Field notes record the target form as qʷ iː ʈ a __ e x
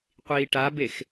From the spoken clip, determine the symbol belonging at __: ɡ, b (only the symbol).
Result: b